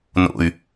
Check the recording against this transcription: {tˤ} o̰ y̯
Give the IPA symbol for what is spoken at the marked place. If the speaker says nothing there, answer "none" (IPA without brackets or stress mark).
n